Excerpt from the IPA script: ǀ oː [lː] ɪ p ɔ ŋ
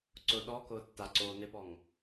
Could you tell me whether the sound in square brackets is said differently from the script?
yes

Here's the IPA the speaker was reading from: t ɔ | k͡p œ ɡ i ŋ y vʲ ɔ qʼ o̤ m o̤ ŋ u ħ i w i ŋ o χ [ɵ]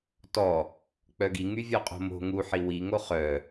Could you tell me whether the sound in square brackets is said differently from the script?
yes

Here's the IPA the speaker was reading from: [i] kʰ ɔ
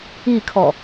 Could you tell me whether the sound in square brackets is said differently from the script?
no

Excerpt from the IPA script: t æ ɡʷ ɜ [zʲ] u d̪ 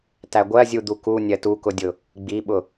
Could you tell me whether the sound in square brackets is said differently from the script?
no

